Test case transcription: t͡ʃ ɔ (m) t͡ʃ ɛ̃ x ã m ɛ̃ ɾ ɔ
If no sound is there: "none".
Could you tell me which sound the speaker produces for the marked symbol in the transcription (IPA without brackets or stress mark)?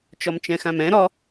m